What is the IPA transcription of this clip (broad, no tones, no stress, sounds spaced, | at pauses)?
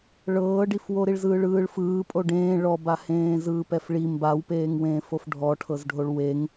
ɭ ɤː ɖ i f w o ɾ i ɭ z ɯː ɭ ɯː ɭ f ɯː pʼ o ɖ ẽː ɭ ɔ b a h ẽː z ɯː p ɛ f ɭ i m b a w p eː ŋ w ẽː f o f ɖʱ ɔ ʈʰ ɤ z ɖʱ o ɭ w e ŋ